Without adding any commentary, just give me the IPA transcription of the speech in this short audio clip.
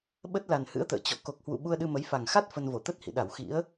ɓə˦˥t̚la˨˩n hɨ̰˧˥ə̯t̪ə̰ː˧˨ t͡ɕɔ̰˧˨ ko˨˩k̚hwṵ˧˨ ɓu˧ə̯ɗɨ˧mə˨˦jfa˨˩ŋ xa˦˥t̚ fə˧nvo˧˩ t̪ə˦˥t̚hḭ˧˨ɗa˧˩w xḭ˧˥ə̯

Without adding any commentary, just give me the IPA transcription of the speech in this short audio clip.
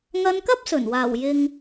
ŋɐ˧nkɐ˥p̚ sɵ˨˩n waː˨˩wjɪ˨ŋ

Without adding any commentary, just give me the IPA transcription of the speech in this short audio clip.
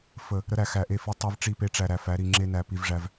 fə˨ | ɾə˦ɾæ˨ xæ˨ʔe˦˨ fi˦ tˤe˦vʈ͡ʂi˦˨pe˦ ʈ͡ʂæ˨ɾæ˨fæ˨˦ ɾi˨ŋ͡ǁe˦næ˨ pi˨vʐæ˨v

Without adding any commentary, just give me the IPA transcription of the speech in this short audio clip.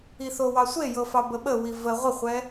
iθowɑsʷe jɤfɑbəɓə wivə ʁʷəχʷɛ

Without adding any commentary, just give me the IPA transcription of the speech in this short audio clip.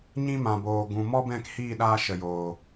ɲĩ˧mã˨boː˨ ɡũ˨mɔ˦bɛ̃˦˨khiː˦˨ ɗaː˧ʃə˨joː˨

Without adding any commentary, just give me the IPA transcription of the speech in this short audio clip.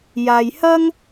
jaː˧jhɐ˥ŋ

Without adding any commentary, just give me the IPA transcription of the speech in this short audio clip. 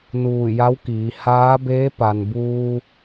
nuː˧˩ja˧˥w kiː˩˧ haː˧˥beː˧˥ pa˩nbuː˧

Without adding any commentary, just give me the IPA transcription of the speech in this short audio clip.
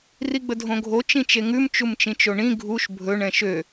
riɡ͡bədʱõɡʱo t͡ʃĩt͡ʃeŋʉm t͡ʃumt͡ʃĩt͡ʃoɳĩ ɡʱuʃ bʱɵɳ ɛ̃ʃø

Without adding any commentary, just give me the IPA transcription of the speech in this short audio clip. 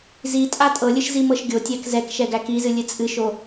zi tʼatʼɤlʲɨʃ zimɤʃɡʲotʲæk zɛk ʃɛɡækizɨ lʲɨt͡sʼɨʃo

